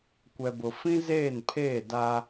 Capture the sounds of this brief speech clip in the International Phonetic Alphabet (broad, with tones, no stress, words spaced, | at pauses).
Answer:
kʷɛ˨bʊ˨ fĩ˦zeː˦˨npʰeː˦˨ da˦